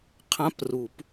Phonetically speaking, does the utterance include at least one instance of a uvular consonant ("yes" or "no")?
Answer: yes